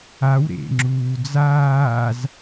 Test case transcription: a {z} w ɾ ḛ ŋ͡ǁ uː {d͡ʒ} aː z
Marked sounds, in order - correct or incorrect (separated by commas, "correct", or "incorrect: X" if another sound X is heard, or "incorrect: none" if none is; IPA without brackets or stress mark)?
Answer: incorrect: none, incorrect: d͡z